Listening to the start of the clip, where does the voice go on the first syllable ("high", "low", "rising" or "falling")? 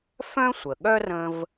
high